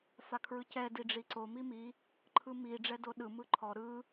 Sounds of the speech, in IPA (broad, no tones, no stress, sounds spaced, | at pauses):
f a kʰ ɹ ɯ c ɛ d i ɖ͡ʐ i ǀ o m i m i | ǃʰ ɯ m i ɖ͡ʐ ɛ d o ɗ ɯ m ɯ ǃʰ ɔ ɾ ɯ